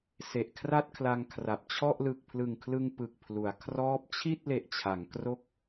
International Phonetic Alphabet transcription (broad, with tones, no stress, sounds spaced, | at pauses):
s e˨˩ ʔ kʰ r a˥˩ t̚ kʰ l a˧ ŋ kʰ r a˨˩ p̚ t͡ɕʰ ɔ˥˩ ʔ l ɯ˨˩ k̚ pʰ l ɯ˨˩ ŋ kʰ l ɯ˧ ŋ p ɯ˨˩ k̚ pʰ l u˩˦ a̯ kʰ r ɔː˦˥ p̚ t͡ɕʰ i˥˩ t̚ l e˨˩ ʔ t͡ɕʰ a˩˦ ŋ k r o˥˩ k̚